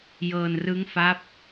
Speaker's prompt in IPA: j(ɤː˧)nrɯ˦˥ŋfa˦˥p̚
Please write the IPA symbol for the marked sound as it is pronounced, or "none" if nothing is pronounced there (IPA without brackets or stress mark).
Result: ɤː˧